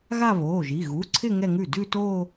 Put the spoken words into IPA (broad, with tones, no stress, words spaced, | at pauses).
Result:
ɣa˥˧βoː˩˧˩ʒi˩˧˩ ɣu˩˧˩ǀʰɪ˥˧ ŋɛ˥˧ŋʉ˥˩ dʉ˥˧toː˥˧